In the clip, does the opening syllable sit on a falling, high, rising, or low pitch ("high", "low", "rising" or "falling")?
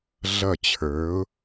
falling